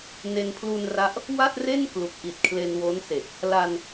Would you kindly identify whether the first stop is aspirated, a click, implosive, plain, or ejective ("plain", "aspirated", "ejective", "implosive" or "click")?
aspirated